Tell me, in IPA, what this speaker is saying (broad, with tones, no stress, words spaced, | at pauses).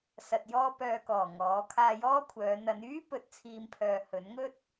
sɐ˧t̚jɔː˥pœː˧kɔː˨˩ ŋɔː˨˥ kʰaː˧jɔː˥kʷʰœː˨˧ n̪ɐ˨˧nyː˥ pɵ˧t̚t͡sʰiː˧mpʰœː˨ hɵ˨˥nŋɵ˥t̚